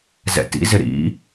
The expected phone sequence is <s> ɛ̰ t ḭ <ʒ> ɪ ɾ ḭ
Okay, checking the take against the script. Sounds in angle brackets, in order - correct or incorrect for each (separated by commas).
incorrect, incorrect